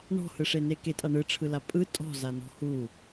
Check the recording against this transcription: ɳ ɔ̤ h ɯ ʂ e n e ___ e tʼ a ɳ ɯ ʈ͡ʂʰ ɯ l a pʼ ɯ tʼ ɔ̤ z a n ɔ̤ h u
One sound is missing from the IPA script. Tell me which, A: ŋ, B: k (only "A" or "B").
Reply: B